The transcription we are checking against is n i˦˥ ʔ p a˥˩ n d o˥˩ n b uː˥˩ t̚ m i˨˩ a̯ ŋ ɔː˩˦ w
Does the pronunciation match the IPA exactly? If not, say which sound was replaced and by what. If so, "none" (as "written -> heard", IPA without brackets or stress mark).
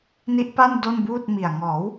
none